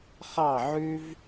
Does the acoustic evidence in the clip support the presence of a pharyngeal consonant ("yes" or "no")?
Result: yes